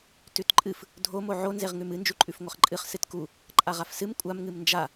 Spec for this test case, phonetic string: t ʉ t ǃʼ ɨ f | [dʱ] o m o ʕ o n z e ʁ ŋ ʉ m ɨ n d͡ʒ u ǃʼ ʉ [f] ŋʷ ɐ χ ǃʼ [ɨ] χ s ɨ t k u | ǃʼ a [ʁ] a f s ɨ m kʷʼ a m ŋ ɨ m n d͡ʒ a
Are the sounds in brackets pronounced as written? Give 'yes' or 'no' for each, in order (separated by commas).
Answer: yes, yes, yes, yes